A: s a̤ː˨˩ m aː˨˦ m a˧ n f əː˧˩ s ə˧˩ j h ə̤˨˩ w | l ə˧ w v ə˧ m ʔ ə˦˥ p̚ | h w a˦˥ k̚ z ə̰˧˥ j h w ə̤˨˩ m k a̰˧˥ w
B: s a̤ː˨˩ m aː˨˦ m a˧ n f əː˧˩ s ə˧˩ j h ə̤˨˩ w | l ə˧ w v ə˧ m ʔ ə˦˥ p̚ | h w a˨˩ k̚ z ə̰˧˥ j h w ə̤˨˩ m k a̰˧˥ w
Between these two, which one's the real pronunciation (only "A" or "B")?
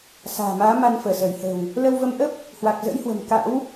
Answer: B